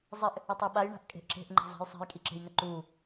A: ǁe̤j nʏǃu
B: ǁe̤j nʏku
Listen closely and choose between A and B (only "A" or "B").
A